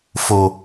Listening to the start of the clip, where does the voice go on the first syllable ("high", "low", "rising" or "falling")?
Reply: low